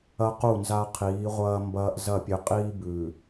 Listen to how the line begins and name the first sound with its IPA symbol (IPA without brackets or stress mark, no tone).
ɐ